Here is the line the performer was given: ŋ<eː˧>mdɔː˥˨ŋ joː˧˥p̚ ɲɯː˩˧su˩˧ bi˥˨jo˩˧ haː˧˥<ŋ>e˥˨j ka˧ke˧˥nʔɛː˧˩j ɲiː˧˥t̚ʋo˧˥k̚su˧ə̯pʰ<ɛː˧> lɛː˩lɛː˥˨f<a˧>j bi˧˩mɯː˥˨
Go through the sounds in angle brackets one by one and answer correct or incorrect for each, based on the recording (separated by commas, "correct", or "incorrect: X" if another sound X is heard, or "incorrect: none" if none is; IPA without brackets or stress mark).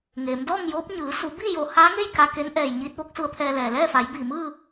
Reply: incorrect: eː˩˧, correct, correct, incorrect: a˩˧